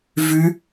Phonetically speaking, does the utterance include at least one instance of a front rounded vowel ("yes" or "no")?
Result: yes